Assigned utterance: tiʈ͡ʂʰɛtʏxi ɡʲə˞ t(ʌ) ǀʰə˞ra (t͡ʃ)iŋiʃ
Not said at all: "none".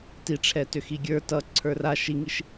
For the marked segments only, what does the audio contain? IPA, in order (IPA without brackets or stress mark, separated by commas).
ʌ, ʃ